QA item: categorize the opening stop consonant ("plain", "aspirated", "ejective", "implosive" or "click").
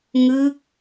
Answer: plain